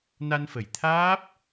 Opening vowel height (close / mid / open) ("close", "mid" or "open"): open